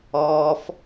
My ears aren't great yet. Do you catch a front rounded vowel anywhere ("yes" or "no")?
no